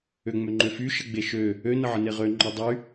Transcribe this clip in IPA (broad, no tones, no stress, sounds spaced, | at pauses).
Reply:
ø ŋ͡m ø ŋ͡ǃ ø f y ʃ ə ɡ͡b e ʃ ø | ø n ə ʕ ə n e ʁ ø ŋ͡ǃ o dˤ y